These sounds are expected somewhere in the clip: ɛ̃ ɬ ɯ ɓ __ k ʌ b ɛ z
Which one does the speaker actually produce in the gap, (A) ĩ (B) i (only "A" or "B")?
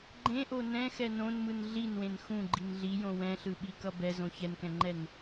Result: B